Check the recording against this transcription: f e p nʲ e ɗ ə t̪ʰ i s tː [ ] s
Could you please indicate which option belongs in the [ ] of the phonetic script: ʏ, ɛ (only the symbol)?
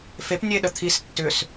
ʏ